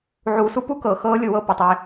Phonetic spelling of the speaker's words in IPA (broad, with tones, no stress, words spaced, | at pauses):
ʕuː˨su˦pu˦ kɤ˨ xɤː˦lʲʊ˦˨wɤ˦ pʊ˨tˤe˦